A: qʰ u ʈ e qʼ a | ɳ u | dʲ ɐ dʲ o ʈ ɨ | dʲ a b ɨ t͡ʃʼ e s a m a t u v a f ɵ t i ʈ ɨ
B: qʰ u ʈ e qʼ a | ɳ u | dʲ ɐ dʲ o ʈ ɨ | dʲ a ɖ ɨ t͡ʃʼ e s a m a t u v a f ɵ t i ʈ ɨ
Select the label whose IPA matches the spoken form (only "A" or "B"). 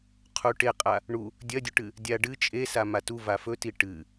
B